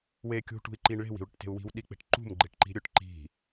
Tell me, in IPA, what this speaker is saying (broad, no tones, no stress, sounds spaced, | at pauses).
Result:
w e kʲ ṳ ʈ ṳ i̯ ǃ i ɳ ɭ e̤ w i̤ u̯ ɽ ʊ ʈ t e̤ u̯ w i̤ w ɗ i k͡p e̤ ʈ ǃ ṳ m ɡ͡ǃ e ʈ ǃ i̤ ɾʲ ʊ ʈ ǃ i̤